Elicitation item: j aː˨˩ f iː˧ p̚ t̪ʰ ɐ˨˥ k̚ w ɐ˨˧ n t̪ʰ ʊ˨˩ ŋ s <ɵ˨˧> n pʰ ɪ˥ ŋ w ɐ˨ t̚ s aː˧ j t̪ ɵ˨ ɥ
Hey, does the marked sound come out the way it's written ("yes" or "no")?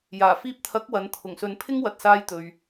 no